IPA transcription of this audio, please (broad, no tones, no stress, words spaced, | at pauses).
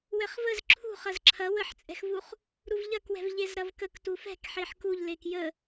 wɛχvəz ǁʰṳχɐz ǁʰɐ wəħt͡sʼɛ̤xvuχ | ɾuvʎɐkwɛ̤v ʎezɾɐvkək tufɛ̤kħeħ kuʎ lekjə